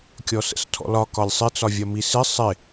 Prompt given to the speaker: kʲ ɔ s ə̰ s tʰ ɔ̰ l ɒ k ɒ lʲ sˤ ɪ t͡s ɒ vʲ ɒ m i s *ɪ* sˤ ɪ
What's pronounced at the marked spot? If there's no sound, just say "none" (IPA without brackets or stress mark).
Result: ɪ